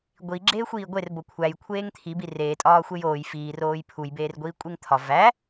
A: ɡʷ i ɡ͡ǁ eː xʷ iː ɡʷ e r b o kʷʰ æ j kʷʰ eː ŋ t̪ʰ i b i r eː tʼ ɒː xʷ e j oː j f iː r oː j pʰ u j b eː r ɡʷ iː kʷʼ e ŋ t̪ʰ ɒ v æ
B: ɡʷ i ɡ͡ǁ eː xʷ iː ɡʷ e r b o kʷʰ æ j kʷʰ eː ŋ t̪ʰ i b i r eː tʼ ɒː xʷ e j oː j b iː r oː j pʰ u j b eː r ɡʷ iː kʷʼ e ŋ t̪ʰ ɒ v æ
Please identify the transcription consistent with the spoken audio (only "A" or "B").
A